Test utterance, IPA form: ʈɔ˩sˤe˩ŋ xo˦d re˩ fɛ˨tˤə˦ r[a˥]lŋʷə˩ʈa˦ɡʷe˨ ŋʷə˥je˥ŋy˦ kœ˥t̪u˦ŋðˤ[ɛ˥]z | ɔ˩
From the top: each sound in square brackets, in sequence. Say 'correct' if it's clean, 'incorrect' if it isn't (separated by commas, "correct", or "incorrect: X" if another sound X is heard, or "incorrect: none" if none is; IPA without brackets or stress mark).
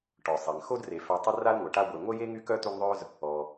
correct, incorrect: œ˥